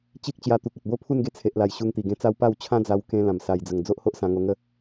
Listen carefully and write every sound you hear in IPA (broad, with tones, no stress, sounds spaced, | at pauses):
t͡ɕ i˦ k̚ t͡ɕ j a˧ t̪ u˨ k̚ ə˨ t̚ b o˦ pʰ u˥˧ n ɡ e˧ t͡sʰ e˨ ʔ l a˨˩ j ɕ u˧ ŋ t̪ i˨˩ ɡ ẽ˧ t͡s a˦ w p a˥˧ w t͡ɕʰ ã˦ d͡z a˧ w k ẽ˧ l ã˨˩ m s a˨˩ j d͡z ə˨˩ ŋ d͡z o˦ ʔ h o˦ ʔ s ã˧ ŋ o˧ ŋ ə˥˧